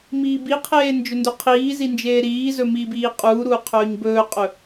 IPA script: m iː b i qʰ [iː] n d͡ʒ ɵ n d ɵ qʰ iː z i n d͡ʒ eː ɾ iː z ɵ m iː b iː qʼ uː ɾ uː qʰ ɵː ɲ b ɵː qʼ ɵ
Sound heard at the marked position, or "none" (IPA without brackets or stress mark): eː